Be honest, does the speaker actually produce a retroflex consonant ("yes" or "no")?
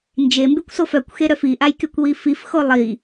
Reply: no